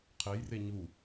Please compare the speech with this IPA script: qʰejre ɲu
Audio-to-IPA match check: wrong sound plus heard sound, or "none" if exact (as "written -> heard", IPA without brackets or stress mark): none